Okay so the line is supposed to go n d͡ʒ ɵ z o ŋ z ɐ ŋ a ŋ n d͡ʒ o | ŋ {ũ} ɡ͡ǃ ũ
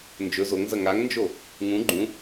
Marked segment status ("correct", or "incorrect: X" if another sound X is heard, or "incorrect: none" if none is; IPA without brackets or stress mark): correct